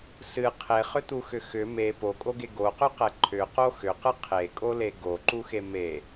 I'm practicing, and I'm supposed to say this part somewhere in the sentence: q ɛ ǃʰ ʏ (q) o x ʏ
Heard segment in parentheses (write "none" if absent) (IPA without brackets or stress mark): q